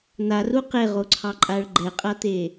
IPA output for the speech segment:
n̪ a r u q e ʁ o ǀʰ ɑ ǃʼ a ɭ ɡ͡ǃ ɛ qʼ a t̪ e

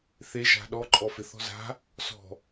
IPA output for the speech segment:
θ e ʒ a̤ ɗ ɔ ǃʼ ɔ f ɪ θ ɔ̤ z a̤ | s ɔ̤

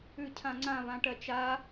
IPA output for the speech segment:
ʉ cʰ ã ŋ͡ǀ ã β ã ʈ ɜ t͡ʃ a

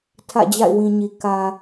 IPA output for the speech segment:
tʰ ä̰˦˨ d͡ʑ a̰˦˨ ɪ̯ w ĩ˨ ɲ i˨ k ä˨

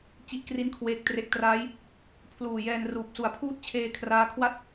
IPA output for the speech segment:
t͡ɕ i˥˩ ʔ k r i˥˩ n kʰ w eː˦˥ k̚ t r e˦˥ k̚ t r aː˦˥ j | pʰ l uː˨˩ j ɛː˧ n r uː˨˩ p̚ s u˨˩ a̯ pʰ uː˥˩ t̚ t͡ɕʰ eː˧ kʰ r aː˦˥ kʰ w a˥˩ t̚

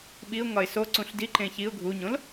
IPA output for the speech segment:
ɓ i ʊ̯ ŋ ɒ ɪ̯ s o ǀ ũ ɬ d i ǃ ẽ ç i ʊ̯ ɡʱ u ɲ õ l

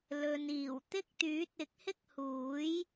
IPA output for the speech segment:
l ɵ˨ n iː˨˩ w t̪ ɪ˥ k̚ t̪ yː˨˥ t̚ ɪ˨˥ k̚ h ɪ˥ k̚ h uː˨˥ j

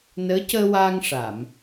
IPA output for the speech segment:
n əː˧˥ c əː˧ w aː˧ ŋ ʂ a˨˩˨ m

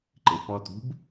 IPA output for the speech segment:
ǃ ɪ p ɔ t ṳ b

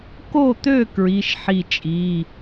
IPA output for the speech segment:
k o˥˨ t̪ ø˥˨ k ɹ i˧˥˧ ʃ ħ i˥˨ t͡ʃʼ i˧˥˧

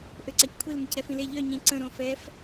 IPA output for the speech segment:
ʔ ø ǀ a c kʷʰ i l m ə c ɾ ɛ f ĩ l e ʎ œ ɲ ĩ ǀ ə̃ ɾ õ f ɛ f

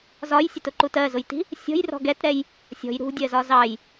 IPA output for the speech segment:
z ɒ j sʲ ɛ t ʊ ǃ u t ɜ z ʊ j t i̤ | sʲ ɔ̤ j r ɔ̤ ɡ ɛ t ɾ ɛ j | sʲ ɔ̤ j ɾ ṳ dʲ ɜ z ɒ z ɑ j

